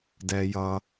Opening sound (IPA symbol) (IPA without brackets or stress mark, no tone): d